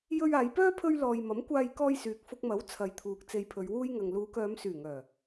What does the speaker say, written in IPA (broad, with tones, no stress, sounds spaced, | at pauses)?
j ɵ˧ ɥ aː˨˧ j p œː˥ pʰ ɵ˥ ɥ l ɔː˧ j m ɐ˨˥ m kʷ aː˧ j k ɔː˧ j s yː˨ k̚ f ʊ˧ k̚ m ɐ˨˥ w t͡sʰ ɐ˨˧ j t̪ʰ uː˨ k̚ t͡s e˧ j pʰ ɵ˨˧ ɥ w uː˥ j ŋ ɐ˨ ŋ l uː˨˧ k œː˨˧ m s yː˨˩ ŋ œː˨˩